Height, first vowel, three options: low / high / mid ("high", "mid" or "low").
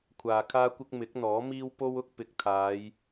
low